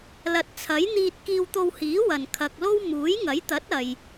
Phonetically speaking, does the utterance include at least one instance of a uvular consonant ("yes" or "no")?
no